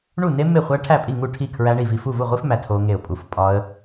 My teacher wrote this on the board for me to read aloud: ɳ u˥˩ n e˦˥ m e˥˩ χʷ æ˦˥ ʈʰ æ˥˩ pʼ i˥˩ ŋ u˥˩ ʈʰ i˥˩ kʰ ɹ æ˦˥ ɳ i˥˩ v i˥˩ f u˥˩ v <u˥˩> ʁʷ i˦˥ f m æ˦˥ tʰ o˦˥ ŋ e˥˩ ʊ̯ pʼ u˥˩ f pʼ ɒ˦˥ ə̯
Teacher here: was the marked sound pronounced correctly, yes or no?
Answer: yes